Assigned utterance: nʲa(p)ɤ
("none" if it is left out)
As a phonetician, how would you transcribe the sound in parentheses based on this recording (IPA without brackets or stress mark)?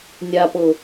p